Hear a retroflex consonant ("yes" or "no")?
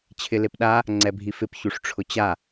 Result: yes